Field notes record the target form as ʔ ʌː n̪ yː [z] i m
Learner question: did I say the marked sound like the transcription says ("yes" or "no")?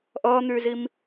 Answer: yes